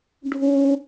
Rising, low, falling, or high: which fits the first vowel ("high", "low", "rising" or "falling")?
high